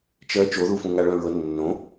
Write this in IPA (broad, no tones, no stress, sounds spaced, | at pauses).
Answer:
t͡ʃ ɜ t͡ʃ o ð u f ũ ŋ a ɭ œ̃ ɹ ɤ nː õ